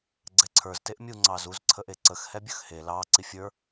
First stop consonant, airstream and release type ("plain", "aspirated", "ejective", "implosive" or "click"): click